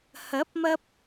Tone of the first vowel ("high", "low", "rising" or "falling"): rising